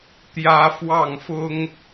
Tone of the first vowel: high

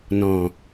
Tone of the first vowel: low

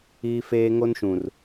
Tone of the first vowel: high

